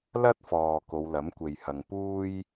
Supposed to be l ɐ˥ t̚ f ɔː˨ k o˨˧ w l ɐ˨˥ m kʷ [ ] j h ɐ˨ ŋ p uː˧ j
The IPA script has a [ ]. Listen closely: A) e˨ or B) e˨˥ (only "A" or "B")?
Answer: A